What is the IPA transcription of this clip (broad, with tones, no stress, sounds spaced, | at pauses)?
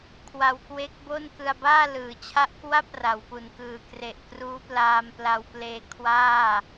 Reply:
kʰ w a˧ w k w e˦˥ k̚ b o˥˩ n k ɯ˧ a̯ b aː˥˩ l ɯː˩˦ t͡ɕʰ a˦˥ ʔ k w a˥˩ p̚ r a˩˦ w p u˨˩ n k ɯː˨˩ k r e˨˩ ʔ k r uː˦˥ p l aː˧ m p l a˧ w p l eː˧ kʰ w aː˥˩